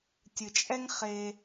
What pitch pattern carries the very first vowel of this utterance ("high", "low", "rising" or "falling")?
low